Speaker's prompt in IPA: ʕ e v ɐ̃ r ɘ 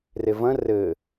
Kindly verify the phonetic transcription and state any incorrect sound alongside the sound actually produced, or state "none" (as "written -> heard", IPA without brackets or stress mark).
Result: ʕ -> r